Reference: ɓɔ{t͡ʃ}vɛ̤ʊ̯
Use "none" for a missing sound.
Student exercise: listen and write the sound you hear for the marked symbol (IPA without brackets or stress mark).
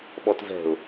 t